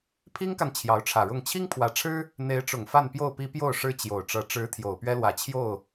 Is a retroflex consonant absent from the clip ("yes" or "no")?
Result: no